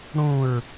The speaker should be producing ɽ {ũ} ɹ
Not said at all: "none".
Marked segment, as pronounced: ũ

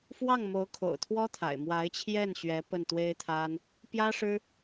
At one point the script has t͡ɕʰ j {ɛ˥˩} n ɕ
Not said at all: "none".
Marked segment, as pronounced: ɛ˥˩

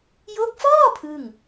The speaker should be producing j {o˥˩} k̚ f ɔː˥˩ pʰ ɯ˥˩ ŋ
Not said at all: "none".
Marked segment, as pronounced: o˦˥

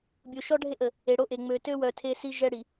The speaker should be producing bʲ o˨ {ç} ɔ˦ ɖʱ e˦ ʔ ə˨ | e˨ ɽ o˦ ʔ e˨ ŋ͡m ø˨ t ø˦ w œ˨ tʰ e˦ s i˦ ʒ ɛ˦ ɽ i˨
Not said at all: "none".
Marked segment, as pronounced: ʃ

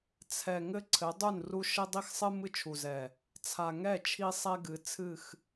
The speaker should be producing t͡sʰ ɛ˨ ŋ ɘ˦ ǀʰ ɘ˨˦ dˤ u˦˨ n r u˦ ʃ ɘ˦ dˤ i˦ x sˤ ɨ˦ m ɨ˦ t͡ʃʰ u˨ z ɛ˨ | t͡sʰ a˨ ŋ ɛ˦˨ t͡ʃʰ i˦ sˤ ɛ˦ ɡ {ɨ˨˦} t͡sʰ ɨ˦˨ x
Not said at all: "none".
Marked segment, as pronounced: ɨ˨˦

